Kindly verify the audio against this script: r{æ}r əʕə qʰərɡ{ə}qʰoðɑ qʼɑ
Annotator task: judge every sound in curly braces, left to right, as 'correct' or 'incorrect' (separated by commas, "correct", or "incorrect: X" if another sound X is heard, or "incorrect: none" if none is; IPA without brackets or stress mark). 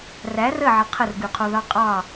correct, incorrect: ʉ